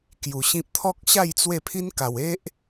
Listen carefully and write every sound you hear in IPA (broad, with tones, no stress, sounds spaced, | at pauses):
k j u˨˩ ɕ ĩ˦ p̚ t̪ʰ ɔ˦ k̚ ɕ a˥˧ j t͡s w e˥˧ pʰ i˦ n k a˨˩ w e˦ ʔ